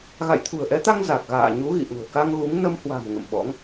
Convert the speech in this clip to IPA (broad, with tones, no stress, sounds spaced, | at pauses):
ɣ a̰˧˨ j t̪ʰ ṳ˨˩ ə̯ ʔ ɛ˨˦ t̪ a˧ ŋ z a˨˩ k̚ ɣ a̰ː˧˨ ɲ u˨˦ ɣ ḭ˧˨ ʔ ṳ˨˩ ə̯ k a˧ ŋ ɣ u˨˦ ŋ n ə˧ m h w a̤˨˩ m ŋ ə̰˧˨ m ɓ ɔ̰˧˥ ŋ